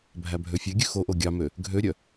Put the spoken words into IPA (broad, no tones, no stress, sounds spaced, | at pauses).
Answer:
bʱ æ bʱ ø fʲ e ɡʲ ʉ x o ʔ o ɡʲ ɑ m ø | ɡʱ ø ɾʲ œ